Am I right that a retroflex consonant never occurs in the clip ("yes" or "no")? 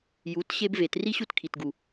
yes